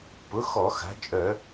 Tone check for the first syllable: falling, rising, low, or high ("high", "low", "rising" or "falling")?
rising